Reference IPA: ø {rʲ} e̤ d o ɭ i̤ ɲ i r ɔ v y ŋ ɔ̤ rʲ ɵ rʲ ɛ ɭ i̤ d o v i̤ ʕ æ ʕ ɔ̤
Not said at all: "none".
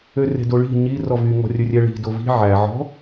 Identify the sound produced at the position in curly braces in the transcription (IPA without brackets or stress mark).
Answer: r